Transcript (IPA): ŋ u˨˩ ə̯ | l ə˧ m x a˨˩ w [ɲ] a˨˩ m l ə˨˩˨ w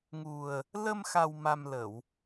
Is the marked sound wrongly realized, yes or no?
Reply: yes